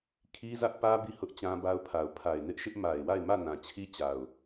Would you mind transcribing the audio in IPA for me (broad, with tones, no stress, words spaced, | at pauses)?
kʰi˦zä˦ʔpä˦ bi˦˨hʊ˦ʔ t͡ɕã˦ba˦ʊ̯pʰa˨ʊ̯ pʰa˨ɪ̯nɪ˦ʔʃɪ˦ʔ ma˨ɪ̯wa˦˨ɪ̯mä˦˨ nã˨t͡ɕʰi˦t͡ɕa˨ʊ̯